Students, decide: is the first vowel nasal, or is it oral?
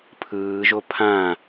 oral